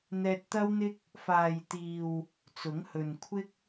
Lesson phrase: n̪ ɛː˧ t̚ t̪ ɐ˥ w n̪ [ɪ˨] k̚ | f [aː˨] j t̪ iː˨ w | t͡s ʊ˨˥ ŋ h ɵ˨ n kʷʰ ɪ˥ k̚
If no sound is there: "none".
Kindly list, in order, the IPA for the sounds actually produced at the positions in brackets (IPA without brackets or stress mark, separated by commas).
ɪ˥, aː˨